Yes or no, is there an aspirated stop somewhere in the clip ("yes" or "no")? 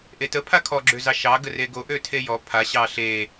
yes